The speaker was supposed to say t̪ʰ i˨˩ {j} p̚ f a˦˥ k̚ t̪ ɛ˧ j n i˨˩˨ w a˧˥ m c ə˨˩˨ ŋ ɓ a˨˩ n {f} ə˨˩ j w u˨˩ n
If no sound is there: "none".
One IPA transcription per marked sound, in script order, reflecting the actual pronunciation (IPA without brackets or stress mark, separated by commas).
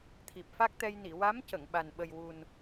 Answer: none, ɓ